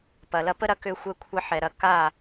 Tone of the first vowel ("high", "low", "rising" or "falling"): low